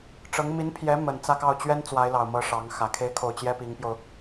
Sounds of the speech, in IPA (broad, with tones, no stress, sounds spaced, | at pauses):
ʈ͡ʂ ɤ˧˥ ŋ m i˧˥ n pʰ j ɛ˧˥ m ə˨˩ n t͡s ä˥˧ k ɑ˥˩ ʊ̯ t͡ɕ ɥ ɛ˥ n t͡s w a˧˥ ɪ̯ l ɑ˨˩ ʊ̯ m ɤ˧˥ ʂ ɑ˧˥ ŋ x ä˨˩ kʰ e˥ ɪ̯ kʰ o˥˩ ʊ̯ t͡ɕ j ɛ˥ p i˧˥ ŋ p j o˧ ʊ̯